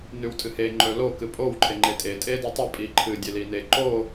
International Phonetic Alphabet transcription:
n ʉ w tʼ ɨ h e ŋ͡ǃ ɵ l o k ɨ pʼ o w ǃʰ e ŋ͡ǃ e tʼ e tʼ e d e tˤ ɵ pʼ i ǃʰ ɨ dʲ e l i n e ǃ o

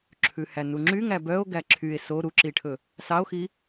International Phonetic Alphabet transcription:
ǁʰ ʉ h æ n u ŋ͡ǁ y ŋ æ b œ o̯ ɡ æ ǁʰ y e̯ s o ɾ u ǁ i ʈʰ ɵ | s ɑ o̯ x i

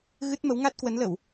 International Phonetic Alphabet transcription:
ɣ ɨ˦˥ t̚ m ə˨˦ w ŋ a˦˥ t̚ k w ə˨˦ n l ə˧˩˨ w

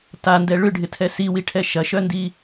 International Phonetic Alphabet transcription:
t a n d ɛ ɭ ʏ ɖʱ ɪ tʰ ɛ s i w i ʈʰ ɛ ʃ ɐ ʃ œ n d i

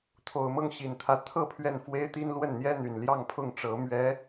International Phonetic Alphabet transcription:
t̪ʰ o˨˩ ʊ̯ m ɤ˥˩ ŋ ɕ i˨˩ n t̪ʰ ä˧˥ t̪ʰ ɤ˥˧ pʰ ɥ ɛ˥˩ n f w e˥ ɪ̯ t̪ i˥ n l w ə˥˩ n n̪ j ɛ˥ n̪ y˨˩ n l j ɑ˥˧ ŋ pʰ ʊ˥˩ ŋ ʈ͡ʂ ɤ˧˥ m ɥ ɛ˧˥

